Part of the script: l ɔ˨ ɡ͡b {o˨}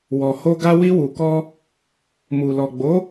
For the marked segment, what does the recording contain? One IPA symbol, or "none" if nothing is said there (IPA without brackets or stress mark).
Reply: o˨˦